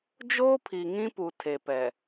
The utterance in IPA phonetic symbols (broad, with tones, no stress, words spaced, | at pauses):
d͡ʒoː˦pʰi˨ŋĩ˦pu˨ tʰe˨pɛ˨